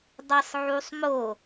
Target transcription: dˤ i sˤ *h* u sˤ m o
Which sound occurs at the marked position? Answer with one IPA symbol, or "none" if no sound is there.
ʕ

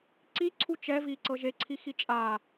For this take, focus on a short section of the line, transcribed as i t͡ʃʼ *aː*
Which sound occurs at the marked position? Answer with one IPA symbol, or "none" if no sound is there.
aː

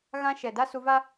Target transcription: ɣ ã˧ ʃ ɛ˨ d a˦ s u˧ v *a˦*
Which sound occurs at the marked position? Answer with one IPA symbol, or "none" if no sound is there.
a˦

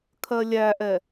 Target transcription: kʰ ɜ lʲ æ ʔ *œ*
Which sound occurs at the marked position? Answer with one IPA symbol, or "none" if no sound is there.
ɛ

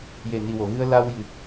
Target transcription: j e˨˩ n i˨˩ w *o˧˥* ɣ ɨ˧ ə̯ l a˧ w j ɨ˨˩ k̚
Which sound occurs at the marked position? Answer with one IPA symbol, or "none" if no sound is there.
o˨˩˨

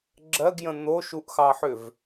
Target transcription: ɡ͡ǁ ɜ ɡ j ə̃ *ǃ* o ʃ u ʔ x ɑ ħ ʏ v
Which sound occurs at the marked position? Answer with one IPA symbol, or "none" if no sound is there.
n̪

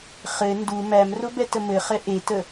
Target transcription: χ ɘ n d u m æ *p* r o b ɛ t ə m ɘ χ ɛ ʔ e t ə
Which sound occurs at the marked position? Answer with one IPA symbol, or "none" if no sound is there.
m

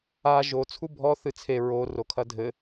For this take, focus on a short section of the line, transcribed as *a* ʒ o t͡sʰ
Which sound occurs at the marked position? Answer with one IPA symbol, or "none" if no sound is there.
a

